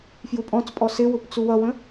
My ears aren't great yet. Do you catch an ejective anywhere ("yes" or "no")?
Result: yes